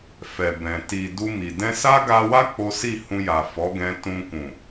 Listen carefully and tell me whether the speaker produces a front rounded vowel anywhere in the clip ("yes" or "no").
no